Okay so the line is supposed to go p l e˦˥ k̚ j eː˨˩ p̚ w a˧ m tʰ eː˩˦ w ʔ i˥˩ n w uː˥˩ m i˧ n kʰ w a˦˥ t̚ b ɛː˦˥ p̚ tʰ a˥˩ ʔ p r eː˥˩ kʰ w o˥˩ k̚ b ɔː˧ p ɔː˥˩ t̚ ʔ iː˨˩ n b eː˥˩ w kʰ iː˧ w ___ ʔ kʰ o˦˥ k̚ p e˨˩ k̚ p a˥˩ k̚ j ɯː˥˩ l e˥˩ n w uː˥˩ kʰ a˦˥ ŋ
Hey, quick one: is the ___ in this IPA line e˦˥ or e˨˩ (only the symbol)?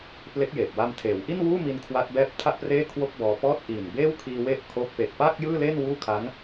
e˦˥